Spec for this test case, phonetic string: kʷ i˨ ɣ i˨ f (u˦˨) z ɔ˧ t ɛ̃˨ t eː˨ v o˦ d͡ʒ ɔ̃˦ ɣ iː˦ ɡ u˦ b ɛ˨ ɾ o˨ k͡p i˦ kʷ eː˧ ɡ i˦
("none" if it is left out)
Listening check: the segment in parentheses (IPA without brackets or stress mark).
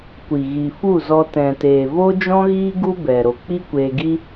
u˦˨